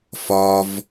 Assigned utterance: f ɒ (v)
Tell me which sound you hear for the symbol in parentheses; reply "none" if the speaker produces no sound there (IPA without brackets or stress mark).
v